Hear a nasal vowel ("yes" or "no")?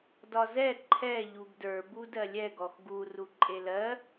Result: no